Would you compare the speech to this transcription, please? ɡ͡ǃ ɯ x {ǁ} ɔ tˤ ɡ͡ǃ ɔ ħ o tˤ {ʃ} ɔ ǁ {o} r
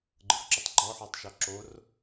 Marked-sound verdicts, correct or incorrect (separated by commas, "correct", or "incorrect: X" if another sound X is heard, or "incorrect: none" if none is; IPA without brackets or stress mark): correct, correct, correct